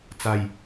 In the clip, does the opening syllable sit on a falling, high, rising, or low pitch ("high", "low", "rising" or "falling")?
low